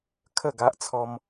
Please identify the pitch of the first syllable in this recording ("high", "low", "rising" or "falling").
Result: falling